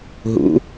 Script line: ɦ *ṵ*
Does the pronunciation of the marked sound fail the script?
no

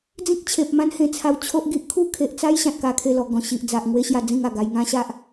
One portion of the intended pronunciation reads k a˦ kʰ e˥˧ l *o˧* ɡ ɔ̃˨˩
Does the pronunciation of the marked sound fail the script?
yes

